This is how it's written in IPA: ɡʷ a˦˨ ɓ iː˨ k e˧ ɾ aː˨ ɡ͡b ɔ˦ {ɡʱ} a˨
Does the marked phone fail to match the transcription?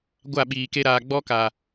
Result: yes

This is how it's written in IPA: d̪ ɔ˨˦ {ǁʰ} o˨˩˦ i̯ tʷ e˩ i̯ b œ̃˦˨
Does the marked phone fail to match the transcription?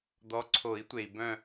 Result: yes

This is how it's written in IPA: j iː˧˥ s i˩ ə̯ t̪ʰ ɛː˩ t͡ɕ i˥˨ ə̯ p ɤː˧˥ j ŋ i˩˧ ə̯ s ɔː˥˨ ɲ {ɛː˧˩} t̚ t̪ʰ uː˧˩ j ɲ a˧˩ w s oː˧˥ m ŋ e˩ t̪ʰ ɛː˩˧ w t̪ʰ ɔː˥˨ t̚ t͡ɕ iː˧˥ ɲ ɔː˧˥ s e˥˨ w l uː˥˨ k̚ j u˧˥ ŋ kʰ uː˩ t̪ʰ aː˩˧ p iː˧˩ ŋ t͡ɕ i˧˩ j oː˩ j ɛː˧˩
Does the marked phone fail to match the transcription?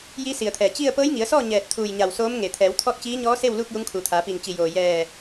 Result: no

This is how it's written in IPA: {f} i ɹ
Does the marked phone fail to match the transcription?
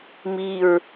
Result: yes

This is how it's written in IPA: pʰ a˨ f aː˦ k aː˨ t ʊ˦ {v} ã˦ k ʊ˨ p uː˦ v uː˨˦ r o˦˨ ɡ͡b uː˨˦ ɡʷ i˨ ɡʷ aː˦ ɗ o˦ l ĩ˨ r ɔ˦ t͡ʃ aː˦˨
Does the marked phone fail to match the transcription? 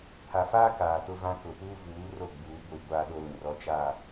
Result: no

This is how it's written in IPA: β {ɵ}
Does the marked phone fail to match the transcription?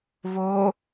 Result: yes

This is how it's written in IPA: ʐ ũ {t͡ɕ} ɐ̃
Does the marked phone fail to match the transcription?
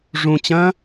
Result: no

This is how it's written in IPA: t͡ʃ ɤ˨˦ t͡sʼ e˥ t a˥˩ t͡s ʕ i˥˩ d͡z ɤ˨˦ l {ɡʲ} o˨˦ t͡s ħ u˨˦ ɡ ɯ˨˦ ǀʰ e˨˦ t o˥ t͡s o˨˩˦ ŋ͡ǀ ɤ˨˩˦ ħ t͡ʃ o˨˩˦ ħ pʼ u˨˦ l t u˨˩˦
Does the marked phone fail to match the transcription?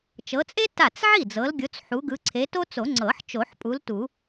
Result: no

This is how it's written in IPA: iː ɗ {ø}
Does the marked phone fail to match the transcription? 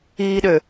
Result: no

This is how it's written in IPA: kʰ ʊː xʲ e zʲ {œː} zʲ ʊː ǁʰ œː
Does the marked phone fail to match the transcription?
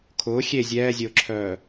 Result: yes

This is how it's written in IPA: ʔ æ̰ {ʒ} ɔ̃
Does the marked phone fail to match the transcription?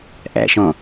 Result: yes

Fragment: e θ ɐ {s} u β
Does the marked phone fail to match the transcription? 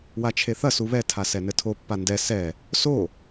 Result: no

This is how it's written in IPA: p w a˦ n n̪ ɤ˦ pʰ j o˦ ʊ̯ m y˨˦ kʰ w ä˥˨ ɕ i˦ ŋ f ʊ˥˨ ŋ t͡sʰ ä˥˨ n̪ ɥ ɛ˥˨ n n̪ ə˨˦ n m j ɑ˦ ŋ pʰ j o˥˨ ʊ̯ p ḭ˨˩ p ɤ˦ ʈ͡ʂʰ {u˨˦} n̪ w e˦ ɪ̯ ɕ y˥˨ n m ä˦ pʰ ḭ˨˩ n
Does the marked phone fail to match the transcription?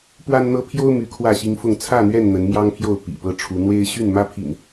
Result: no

